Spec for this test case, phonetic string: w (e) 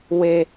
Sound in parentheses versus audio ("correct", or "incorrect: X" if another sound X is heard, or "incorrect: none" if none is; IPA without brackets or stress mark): correct